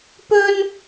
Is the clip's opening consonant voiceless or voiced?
voiceless